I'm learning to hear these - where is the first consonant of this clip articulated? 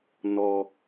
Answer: tongue tip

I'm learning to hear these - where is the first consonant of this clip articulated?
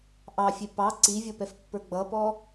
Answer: throat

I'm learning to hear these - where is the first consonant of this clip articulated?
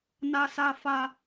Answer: tongue tip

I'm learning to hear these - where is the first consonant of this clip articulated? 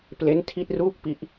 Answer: lips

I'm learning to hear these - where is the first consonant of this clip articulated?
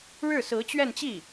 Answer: retroflex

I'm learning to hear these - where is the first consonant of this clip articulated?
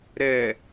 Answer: tongue tip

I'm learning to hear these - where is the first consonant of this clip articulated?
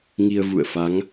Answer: velum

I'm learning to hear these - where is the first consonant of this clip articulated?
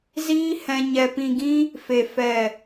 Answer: tongue tip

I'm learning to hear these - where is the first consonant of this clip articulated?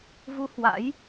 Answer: lips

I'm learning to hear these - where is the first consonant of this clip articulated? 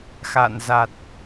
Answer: velum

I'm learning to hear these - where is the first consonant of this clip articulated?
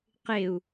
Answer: uvula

